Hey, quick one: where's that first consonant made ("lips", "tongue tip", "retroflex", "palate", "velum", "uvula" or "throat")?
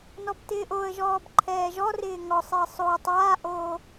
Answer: tongue tip